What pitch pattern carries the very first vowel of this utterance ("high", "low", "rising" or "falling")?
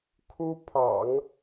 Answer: high